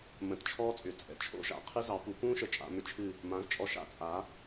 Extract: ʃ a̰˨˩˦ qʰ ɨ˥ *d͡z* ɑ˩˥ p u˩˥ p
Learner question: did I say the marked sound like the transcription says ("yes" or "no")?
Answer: no